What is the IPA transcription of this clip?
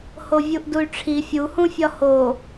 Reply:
h o vʲ u ʔ d u y̯ ʈ͡ʂʰ i fʲ u h ũ fʲ ɒ h o

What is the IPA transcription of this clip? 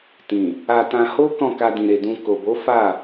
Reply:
t ĩ˨ | a˧ t ã˧ h o˦ k ɔ̃˦˨ k a˧ d ĩ˨ ɾ e˨ d ũ˧ k o˨ b o˨˦ f a˦˨

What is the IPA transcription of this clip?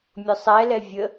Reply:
mʲ ʊ sˤ ɛ l ɛ vʲ ə

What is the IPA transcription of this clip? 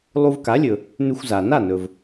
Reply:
lˠ u˧ v k a˩˥ lʲ ɵ˩ | n ʉ˧ xʷ z a˩ n a˥˩ n ɵ˩ v

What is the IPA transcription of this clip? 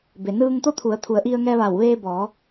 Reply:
b e˩ n ɯː˧ ŋ t̪ o˥˨ t̪ʰ u˩˧ ə̯ t̪ʰ u˩˧ ə̯ ʔ i˧ ə̯ ŋ ɛː˧ ʋ a˧˩ w ʋ eː˧ b ɔː˩˧

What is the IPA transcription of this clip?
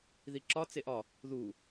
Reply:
ð i ǁ ɒ t͡s e ʔ ɒ | ð u

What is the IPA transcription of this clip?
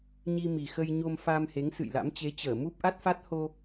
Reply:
ɲ i˧ m i˨˩ x ə˧ j ɲ o˧ m f a˧ m h e˨˦ ŋ s ɨ̰˧˨ j l a̰˧˥ m t͡ɕ e˨˦ t͡ɕ əː˧˩ m u˦˥ p̚ ʔ a˦˥ t̚ f a˦˥ t̚ h o˧

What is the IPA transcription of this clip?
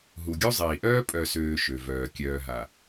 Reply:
ɦ u˨ ɡʲ u˦ zˤ iː˨ ʔ œː˦ pʼ œ˨ s øː˨ ʃ ø˨ v œː˨ kʲ œː˨ ɦ a˨

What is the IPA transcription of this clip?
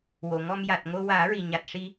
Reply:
w o˨˩˨ ŋ ɔ˧ m j a˨˩ t̚ ŋ o˧ w aː˨˩˦ ɹ i˨˩ ɲ a˨˩ t̚ ʂ i˧

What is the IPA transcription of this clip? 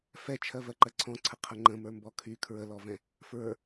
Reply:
f ɛ t͡ʃʰ ɜ v ɜ ǃ ɜ ǀʰ ɔ̃ ǀʰ ə qʰ ə ŋ͡ǃ ə̃ m ə˞ m b ɔ kʰ y kʰ ɹ ə l ɔ v ɛ̃ | f ɹ ə˞

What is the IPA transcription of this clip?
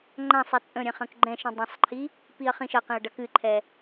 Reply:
ŋ͡ǃ ã sˤ ɛ t͡sʼ ə̃ ɾʲ ɛ̃ χ ɐ̃ k ɡ͡ǃ ɛ̃ ʃ ĩ dˤ ɐ̃ sˤ ǃʰ i | p i ɐ̯ χ ĩ ʃ ɐ q ĩ ɐ̯ ɖ ɐ k ɨ ǃʰ ɛ

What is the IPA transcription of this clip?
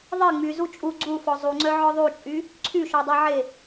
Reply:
ðˤ e ŋ͡m y z u t͡ʃʼ u ɡ͡ǀ u f ɔ zˤ u ŋ͡ǀ œ ʕ ɔ ðˤ u t͡ʃʼ y | ǀʰ y ʃ ɔ dˤ œ ʕ e

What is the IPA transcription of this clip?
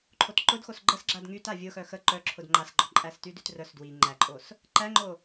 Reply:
ǃʰ o t ǃ ʊ d x o s ɡ͡ǃ ə s ɡ͡ǁ a d ŋ y t a vʲ ʊ x œ x ə ǃ œ ǁʰ ʊ d ŋ͡ǃ a s ɡ͡ǃ ɔ ǃʼ æ s t y d y t r œ s d w i ŋ͡ǃ æ ǃʼ o s | ǃ æ ŋ͡ǃ o

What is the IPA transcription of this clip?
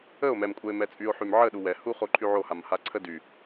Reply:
ə o̯ m ɛ m kʷʼ ɛ e̯ m ɛ t͡sʼ y o̯ ħ y m ʕ ə ɗ u w ɛ h u χ o ǃʰ y ʕ o h a m h a ǀʰ ə d y

